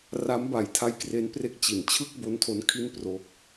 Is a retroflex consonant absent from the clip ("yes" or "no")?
yes